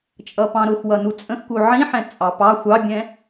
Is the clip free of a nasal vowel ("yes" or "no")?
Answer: no